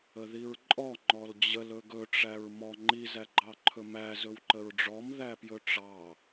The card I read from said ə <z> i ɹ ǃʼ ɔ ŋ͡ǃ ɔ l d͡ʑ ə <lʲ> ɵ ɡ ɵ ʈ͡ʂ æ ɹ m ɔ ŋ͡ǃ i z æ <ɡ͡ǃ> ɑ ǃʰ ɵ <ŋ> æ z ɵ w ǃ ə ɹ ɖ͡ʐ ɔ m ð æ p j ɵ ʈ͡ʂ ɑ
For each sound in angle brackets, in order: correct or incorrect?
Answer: incorrect: ð, incorrect: l, correct, incorrect: m

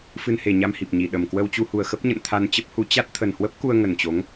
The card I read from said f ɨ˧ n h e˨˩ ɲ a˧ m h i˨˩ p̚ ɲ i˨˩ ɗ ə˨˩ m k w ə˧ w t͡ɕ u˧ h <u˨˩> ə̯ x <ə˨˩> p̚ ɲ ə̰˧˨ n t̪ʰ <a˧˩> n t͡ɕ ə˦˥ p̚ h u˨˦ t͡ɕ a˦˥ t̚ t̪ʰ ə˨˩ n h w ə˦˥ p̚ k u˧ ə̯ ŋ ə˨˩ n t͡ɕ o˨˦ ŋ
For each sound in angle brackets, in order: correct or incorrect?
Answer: correct, incorrect: ə˦˥, incorrect: a˧

